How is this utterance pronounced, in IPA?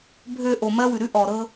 bʱ ø˨ ʔ o˨ m ɜ˦ w ʉ˨ ɾ ʉ˦ ʔ ɔ˨ ɾ ɤ˦

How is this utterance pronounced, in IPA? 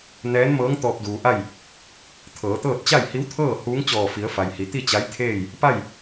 n ɛː˧˥ n m ɤː˧˥ ŋ t̪ ɔː˧ p̚ d uː˩ ʔ a˥˨ j | t̪ʰ ɤː˩˧ t̪ ɤː˥˨ t̚ t͡ɕ a˥˨ j h i˧˥ w t̪ʰ ɤː˥˨ h uː˧˥ ŋ t͡ɕ ɔː˧˩ f i˩˧ ə̯ f a˩ j h i˩˧ t̪ i˥˨ t͡ɕ a˧˥ j t̪ʰ eː˥˨ j | p a˥˨ j

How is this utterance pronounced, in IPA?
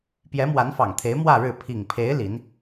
p j ɛ˧˥ m w a˧˥ n f ɑ˨˩ ŋ t̪ʰ e˧˥ ɪ̯ m w ä˥˧ ɻ ɻ̩˥˩ pʰ i˨˩ ŋ pʰ e˧˥ ɪ̯ l i˧˥ n

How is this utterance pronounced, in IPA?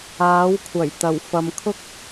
aː˨˥ w kʷʰ ɐ˨˩ j t̪ ɐ˨˩ w f ɐ˨ m kʰ ʊ˥ k̚

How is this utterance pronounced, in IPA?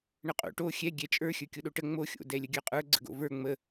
ɳ ə qʼ o̰ ʈ o xʲ ɛ ɡʲ ɛ t͡ʃʼ ə˞ xʲ ə˞ kʲ o ɗ o ʈ ə ŋ͡m o xʲ o̰ d ɛ lʲ ə ɡʲ ə˞ qʼ ə˞ ɡ͡ǀ ə̰ ɡ o̰ v ə˞ ŋ͡m ə

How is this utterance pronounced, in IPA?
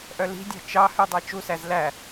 ʔ œ l i̤ dʲ ɑ̤ t͡ʃ ɑ h ʉ dˤ æ t͡ʃ u s æ z l æ

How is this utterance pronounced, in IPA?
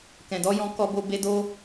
k ɛ̃˨ d ɔ˧ j ɔ̃˧ k ɔ˧ b o˧ b e˧ d o˦

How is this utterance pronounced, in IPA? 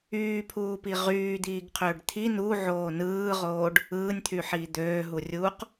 yː pʰ uː p i ʁ yː d̪ iː ɡ qʰ øː ɖ t̪ʰ i n u ʕ oː n ɯː ʁ oː ɖ | ɯː nʲ t̪ʰ y ħ iː d̪ øː ɦ u rʲ uː q

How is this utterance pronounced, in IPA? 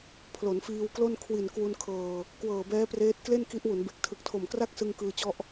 pʰ l o˩˦ n f iː˧ w k l o˥˩ n kʰ w i˨˩ n k w u˧ n kʰ ɤː˨˩ | k w ɤː˨˩ b ɛː˦˥ p r eː˦˥ t̚ k l e˥˩ n k i˦˥ ʔ w u˩˦ n b e˨˩ k̚ tʰ ɯ˨˩ k̚ tʰ o˨˩ m k r a˥˩ k̚ s ɯ˧ ŋ k ɯː˧ t͡ɕ ɔ˦˥ ʔ

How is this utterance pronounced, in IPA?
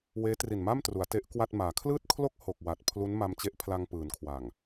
w eː˦˥ t r i˨˩ n m a˥˩ m t r u˩˦ a̯ t e˦˥ ʔ k w a˥˩ t̚ m aː˩˦ kʰ l ɯː˥˩ t̚ kʰ l o˥˩ k̚ h o˨˩ k̚ w a˨˩ t̚ pʰ l u˦˥ n m a˧ m t͡ɕ e˦˥ ʔ pʰ l a˧ ŋ p ɯː˩˦ n kʰ w a˨˩ ŋ

